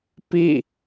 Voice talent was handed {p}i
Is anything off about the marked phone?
no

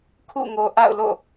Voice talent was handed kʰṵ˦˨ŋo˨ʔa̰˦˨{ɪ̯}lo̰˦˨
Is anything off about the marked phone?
yes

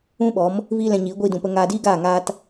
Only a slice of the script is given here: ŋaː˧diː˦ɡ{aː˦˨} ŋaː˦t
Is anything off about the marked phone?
no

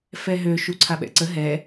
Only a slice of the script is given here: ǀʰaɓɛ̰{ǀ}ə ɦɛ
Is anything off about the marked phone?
no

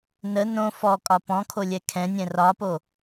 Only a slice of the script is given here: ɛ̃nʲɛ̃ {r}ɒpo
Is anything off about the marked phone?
no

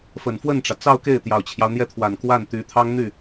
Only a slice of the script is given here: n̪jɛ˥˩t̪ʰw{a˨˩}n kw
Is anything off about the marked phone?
no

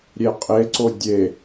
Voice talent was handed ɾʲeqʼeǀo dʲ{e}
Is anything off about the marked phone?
no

